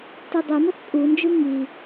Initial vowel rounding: unrounded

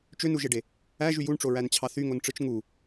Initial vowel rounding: rounded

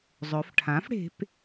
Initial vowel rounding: rounded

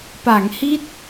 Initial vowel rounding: unrounded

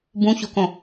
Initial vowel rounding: rounded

